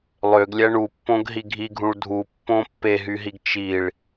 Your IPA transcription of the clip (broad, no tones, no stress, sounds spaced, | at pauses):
lˠ ø ɡ lʲ æ ɳ u pː õ ɡ ɦ i ɡʱ i ɡʱ ũ ɭ dʱ u pː õ pː e ɦ y ɦ i ɡ t͡ʃ i ɭ